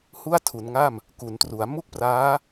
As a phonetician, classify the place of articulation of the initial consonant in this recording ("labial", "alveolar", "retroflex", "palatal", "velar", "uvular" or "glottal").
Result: glottal